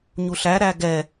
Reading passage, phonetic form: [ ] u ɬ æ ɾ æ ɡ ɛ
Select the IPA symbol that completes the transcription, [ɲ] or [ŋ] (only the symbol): ɲ